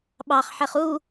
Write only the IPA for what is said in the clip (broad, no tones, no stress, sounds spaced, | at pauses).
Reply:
ɓ ɑ χ ħ ɛ χ u